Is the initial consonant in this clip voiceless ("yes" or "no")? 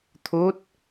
yes